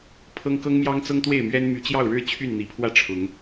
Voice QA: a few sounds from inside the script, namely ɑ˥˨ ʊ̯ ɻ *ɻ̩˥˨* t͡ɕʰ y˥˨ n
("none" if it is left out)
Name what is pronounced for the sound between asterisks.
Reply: ɻ̩˥˨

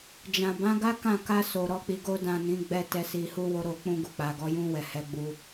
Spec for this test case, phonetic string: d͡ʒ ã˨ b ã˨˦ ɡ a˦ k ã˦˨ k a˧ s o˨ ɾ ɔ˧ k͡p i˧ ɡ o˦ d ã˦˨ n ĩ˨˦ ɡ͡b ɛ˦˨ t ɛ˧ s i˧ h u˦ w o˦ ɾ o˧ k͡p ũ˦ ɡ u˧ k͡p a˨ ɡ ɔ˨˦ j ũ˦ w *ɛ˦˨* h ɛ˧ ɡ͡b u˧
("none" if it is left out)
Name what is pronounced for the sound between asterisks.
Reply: ɛ˦˨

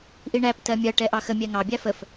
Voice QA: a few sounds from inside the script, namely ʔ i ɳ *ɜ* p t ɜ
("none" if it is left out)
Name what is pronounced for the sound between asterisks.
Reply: æ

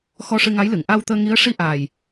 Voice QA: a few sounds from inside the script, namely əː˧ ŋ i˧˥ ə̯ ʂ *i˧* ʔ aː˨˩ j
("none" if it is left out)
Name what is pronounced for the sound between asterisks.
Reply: i˧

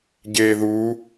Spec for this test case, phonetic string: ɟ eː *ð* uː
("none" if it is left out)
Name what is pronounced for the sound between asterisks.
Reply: ð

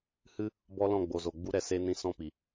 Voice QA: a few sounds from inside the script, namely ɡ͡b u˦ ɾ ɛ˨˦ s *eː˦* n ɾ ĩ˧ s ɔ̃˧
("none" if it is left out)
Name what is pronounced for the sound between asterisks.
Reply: eː˦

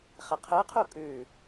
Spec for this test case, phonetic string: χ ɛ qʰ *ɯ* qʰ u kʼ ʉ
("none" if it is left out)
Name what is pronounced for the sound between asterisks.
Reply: ɯ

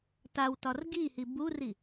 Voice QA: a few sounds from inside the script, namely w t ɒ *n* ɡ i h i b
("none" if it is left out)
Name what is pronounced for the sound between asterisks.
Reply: r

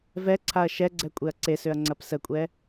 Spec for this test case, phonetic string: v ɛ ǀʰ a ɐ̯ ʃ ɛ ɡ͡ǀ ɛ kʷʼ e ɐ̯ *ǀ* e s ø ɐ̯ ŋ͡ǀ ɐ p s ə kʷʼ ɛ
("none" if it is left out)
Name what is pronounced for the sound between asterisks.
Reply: ǀ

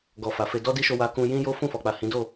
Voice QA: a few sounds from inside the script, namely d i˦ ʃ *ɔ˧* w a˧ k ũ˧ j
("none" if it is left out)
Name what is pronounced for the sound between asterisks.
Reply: o˧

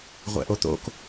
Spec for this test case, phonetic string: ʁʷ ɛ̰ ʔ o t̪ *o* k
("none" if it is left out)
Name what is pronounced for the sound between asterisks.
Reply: o̰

